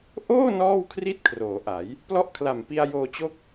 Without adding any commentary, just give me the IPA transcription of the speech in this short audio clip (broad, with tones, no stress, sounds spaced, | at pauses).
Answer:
ʔ oː˥˩ n ɔː˥˩ w kʰ r i˥˩ t̚ kʰ r oː˩˦ ʔ a˩˦ j | p l ɔ˥˩ ʔ kʰ l a˨˩ m p i˧ a̯ j oː˧ t͡ɕ o˥˩ k̚